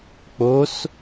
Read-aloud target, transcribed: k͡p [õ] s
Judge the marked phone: incorrect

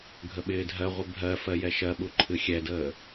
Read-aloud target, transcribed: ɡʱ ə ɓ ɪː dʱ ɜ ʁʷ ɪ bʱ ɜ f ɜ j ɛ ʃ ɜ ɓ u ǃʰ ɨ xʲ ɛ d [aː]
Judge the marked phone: incorrect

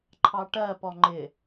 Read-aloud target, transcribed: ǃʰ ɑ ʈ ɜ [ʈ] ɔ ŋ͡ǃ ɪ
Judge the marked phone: incorrect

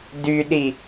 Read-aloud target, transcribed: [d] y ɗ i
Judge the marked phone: correct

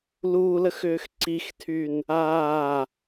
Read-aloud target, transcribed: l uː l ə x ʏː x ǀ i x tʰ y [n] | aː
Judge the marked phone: correct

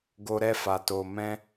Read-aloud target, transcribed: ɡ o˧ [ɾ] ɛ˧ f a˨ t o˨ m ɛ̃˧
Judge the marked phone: correct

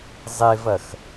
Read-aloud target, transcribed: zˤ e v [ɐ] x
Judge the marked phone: correct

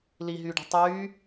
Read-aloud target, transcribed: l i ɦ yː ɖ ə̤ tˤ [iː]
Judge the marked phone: incorrect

